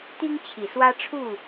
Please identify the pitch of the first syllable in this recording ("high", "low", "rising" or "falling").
high